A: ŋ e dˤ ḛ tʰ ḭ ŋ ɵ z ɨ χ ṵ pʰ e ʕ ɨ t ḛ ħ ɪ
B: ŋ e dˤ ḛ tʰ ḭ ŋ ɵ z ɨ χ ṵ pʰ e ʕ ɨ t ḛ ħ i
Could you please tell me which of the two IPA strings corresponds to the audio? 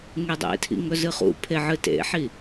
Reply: B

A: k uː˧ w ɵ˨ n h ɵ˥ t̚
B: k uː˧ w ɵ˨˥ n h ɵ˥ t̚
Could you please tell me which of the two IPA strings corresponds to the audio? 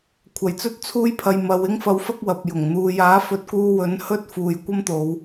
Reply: B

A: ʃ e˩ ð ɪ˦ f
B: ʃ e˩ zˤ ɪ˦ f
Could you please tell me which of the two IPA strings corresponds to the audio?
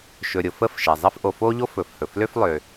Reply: B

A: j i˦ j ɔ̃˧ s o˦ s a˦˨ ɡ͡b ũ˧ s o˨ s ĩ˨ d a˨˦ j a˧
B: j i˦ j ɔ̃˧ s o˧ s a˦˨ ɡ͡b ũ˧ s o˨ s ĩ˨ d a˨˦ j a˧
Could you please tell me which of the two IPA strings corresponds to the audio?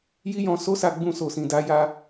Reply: A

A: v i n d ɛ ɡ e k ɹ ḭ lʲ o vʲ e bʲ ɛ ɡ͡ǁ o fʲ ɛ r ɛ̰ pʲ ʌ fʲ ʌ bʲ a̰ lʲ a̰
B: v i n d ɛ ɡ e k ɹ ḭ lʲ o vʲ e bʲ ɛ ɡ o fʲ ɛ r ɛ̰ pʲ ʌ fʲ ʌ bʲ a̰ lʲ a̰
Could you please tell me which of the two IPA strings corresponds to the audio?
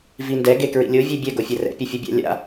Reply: B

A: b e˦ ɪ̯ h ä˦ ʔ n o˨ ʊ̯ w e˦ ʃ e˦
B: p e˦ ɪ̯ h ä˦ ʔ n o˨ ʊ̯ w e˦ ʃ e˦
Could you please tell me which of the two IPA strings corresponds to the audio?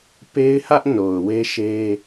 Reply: B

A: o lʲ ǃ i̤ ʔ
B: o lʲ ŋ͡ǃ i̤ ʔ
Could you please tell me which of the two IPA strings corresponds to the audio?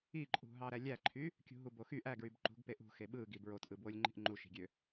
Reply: B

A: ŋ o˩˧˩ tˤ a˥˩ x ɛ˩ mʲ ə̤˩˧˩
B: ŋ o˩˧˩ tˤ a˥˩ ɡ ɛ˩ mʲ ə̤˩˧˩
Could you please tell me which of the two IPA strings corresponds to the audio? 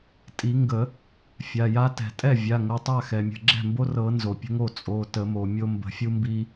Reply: A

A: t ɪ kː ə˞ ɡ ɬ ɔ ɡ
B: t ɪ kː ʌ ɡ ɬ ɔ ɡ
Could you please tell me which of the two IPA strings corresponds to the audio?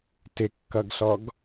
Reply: B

